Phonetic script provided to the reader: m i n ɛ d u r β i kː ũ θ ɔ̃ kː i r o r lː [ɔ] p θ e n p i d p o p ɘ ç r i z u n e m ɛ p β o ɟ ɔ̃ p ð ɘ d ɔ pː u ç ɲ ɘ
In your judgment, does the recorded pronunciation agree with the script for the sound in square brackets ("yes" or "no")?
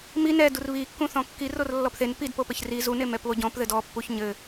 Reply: yes